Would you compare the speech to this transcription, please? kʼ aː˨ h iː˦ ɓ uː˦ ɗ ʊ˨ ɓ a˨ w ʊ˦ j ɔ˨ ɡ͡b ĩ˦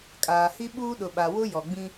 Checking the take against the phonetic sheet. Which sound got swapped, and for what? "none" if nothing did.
iː˦ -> i˦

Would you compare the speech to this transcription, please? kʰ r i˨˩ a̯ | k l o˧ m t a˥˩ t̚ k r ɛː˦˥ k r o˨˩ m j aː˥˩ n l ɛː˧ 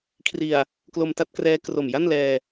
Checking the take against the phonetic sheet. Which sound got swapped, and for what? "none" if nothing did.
aː˥˩ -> a˥˩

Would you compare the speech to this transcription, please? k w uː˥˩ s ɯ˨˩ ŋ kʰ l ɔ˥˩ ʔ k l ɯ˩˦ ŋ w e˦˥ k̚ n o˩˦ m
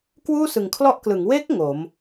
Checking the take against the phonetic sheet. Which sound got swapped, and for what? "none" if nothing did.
n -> ŋ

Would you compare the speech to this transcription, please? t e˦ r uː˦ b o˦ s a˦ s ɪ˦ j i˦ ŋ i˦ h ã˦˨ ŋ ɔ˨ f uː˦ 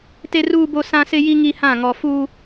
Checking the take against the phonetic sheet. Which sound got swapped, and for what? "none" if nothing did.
a˦ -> ã˦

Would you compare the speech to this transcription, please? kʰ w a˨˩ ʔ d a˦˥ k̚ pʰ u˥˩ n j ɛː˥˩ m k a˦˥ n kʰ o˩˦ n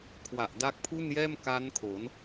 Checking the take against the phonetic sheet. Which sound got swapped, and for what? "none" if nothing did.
none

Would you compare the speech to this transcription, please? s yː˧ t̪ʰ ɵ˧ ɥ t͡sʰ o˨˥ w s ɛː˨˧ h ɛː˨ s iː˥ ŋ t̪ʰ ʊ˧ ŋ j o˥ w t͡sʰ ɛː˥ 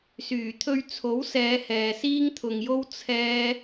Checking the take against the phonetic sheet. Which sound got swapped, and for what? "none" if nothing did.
yː˧ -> yː˨˩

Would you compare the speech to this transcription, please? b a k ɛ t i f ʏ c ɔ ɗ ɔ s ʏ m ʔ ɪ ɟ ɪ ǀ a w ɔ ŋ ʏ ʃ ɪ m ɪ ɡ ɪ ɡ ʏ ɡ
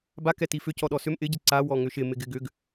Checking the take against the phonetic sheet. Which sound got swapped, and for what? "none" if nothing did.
none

